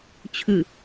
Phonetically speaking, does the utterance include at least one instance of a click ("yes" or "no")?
no